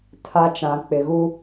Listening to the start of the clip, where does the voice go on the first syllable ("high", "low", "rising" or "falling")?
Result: high